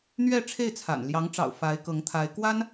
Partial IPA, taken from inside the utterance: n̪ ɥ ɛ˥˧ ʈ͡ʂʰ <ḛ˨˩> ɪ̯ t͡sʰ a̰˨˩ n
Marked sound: incorrect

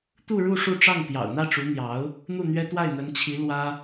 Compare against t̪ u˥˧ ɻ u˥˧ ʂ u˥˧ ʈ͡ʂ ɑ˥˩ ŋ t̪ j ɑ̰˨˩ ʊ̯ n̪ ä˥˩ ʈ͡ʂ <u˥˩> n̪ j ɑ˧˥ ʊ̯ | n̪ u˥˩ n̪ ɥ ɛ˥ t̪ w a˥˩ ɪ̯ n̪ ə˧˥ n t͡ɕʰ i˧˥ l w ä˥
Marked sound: incorrect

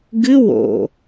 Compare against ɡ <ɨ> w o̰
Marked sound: correct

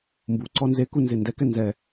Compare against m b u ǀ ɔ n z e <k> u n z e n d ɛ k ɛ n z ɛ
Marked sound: correct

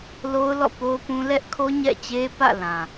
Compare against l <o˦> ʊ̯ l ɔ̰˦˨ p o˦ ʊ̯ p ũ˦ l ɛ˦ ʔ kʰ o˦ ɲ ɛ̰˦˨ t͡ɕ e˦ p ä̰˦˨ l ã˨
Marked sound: correct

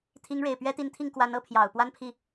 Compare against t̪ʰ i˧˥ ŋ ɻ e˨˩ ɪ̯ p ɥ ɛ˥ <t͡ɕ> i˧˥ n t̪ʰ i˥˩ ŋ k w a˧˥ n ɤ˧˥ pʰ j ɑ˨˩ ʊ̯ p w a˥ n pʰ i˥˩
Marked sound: incorrect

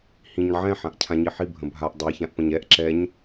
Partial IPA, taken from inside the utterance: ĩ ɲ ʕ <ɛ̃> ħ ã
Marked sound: correct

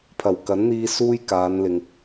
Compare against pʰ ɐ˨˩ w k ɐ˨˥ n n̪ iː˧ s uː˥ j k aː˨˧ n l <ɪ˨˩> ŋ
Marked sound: incorrect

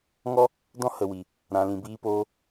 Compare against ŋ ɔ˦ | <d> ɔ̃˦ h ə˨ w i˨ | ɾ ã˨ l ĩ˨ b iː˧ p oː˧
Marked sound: correct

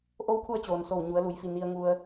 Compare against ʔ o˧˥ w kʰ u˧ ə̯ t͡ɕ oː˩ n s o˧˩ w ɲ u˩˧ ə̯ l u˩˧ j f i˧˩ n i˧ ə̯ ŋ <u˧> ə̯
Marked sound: correct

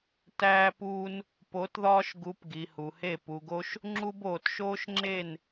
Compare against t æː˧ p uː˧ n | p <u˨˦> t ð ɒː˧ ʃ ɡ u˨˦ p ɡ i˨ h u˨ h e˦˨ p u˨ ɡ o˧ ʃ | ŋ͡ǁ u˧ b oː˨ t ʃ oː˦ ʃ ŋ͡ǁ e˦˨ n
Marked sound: incorrect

